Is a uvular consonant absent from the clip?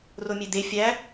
yes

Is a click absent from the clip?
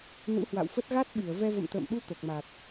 yes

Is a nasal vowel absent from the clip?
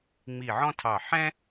no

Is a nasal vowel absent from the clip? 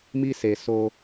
yes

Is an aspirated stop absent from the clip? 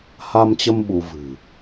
yes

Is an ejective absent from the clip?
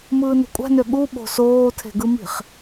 no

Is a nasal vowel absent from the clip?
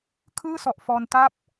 yes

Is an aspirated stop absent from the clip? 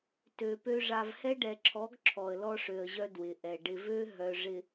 no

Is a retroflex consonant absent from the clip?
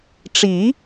no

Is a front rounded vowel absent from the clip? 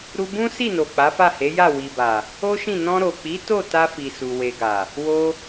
yes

